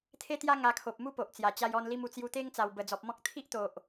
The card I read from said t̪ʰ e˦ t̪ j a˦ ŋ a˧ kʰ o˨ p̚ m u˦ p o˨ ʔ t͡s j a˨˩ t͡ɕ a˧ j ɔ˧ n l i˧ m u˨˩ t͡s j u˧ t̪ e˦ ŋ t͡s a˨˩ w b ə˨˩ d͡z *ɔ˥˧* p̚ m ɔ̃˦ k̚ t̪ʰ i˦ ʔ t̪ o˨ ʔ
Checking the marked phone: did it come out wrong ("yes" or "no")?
yes